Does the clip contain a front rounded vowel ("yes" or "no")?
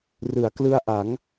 no